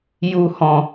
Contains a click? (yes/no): no